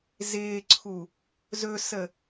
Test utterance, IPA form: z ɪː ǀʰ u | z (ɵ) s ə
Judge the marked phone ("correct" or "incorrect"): correct